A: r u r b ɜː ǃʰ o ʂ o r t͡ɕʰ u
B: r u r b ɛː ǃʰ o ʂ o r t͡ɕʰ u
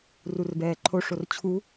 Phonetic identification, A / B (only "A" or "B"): B